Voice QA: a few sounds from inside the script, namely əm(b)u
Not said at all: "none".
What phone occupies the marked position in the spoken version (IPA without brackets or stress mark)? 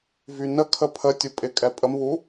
β